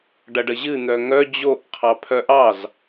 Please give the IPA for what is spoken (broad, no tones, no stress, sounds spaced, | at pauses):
ɖ ɐ ɖ ə ʑ ɨ n̪ œ ŋ œ d͡ʑ o ʔ qʰ ɑ pʰ œ ʔ ɑ z